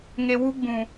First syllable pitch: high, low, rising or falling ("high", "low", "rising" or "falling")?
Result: low